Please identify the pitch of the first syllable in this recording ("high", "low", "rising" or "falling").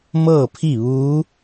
falling